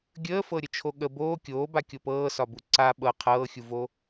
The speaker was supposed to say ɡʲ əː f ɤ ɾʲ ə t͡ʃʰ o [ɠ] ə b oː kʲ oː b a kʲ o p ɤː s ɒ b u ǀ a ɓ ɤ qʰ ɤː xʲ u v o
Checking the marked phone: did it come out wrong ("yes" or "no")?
no